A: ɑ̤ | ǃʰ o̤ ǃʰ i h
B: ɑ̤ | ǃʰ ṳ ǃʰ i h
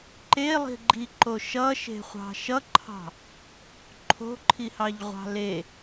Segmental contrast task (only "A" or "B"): A